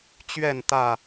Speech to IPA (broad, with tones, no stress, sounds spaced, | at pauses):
t͡ɕ ɥ ɛ˥˨ n t̪ ä˥˨